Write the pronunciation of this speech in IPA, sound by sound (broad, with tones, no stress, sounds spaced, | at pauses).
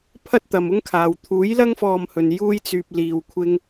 pʰ ɐ˥ t̚ t̪ ɐ˨ m ʊ˥ ŋ kʰ aː˨ w t̪ʰ uː˨˥ j l ɐ˥ ŋ f ɔː˧ m h ɵ˨ n j uː˥ j t͡s yː˧ p̚ l iː˧ w kʷʰ ɪ˥ ŋ